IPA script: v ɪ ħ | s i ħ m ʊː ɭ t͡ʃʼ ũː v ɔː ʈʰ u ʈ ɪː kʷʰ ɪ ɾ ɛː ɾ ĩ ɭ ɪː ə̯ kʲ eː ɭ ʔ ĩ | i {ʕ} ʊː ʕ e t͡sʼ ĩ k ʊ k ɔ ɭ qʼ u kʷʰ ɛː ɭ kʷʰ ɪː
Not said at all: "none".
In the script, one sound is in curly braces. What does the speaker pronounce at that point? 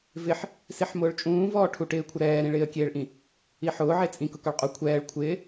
ħ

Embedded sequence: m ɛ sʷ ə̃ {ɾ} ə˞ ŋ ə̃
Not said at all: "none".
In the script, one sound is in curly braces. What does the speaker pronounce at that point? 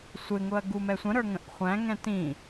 ɾ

